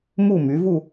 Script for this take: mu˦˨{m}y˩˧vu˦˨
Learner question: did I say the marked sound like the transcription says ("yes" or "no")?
yes